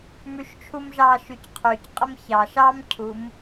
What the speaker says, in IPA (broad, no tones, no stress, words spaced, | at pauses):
mʉʃt͡ʃʰumʒɑ ʃʉcqʰʉcqʼəm çɑʃ ɑmcʰum